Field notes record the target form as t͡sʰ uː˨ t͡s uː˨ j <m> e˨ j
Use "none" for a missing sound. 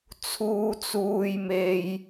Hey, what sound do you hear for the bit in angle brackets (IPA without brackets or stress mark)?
m